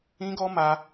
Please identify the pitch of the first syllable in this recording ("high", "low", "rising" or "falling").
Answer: high